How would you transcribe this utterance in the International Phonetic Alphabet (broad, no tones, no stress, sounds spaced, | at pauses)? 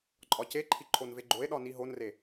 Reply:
ǃʼ ɒ c e ǃʰ i ǃʰ o n v e ɡ͡ǃ o e̯ ɗ ɒ n i ɦ o n r e